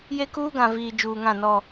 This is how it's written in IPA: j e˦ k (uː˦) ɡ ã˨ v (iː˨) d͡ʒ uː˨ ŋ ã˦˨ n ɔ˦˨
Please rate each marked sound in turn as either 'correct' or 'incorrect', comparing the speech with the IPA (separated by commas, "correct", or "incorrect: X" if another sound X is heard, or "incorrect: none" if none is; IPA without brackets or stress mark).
correct, correct